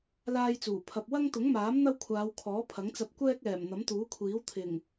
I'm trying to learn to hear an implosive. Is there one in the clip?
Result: no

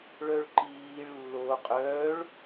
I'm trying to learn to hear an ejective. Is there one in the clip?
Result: yes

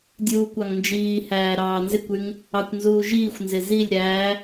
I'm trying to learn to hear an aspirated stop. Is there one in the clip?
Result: no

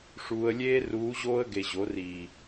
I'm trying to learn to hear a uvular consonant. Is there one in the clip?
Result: no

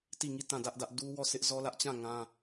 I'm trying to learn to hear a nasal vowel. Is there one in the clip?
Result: yes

